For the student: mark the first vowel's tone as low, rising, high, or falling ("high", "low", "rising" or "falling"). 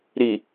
low